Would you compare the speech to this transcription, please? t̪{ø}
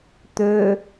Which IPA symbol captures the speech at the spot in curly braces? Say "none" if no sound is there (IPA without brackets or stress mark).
ø